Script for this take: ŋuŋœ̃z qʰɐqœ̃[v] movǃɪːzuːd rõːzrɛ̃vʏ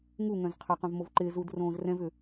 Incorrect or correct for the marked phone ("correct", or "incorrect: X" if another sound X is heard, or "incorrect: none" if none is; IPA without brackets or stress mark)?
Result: correct